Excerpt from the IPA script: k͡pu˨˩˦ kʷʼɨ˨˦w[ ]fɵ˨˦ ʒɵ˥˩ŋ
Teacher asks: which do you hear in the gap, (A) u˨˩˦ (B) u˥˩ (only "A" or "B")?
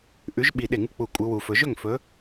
A